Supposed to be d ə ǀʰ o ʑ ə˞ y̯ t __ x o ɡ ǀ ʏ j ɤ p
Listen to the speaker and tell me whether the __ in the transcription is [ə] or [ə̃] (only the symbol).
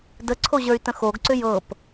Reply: ə̃